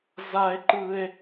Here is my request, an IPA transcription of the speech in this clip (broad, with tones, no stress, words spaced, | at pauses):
za˥e̯ǃɯ˥e̯